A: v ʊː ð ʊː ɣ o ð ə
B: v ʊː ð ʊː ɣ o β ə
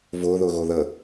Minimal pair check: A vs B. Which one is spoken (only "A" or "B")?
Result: A